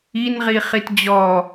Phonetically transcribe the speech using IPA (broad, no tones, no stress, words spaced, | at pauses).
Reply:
inʁi χitd͡ʑɔ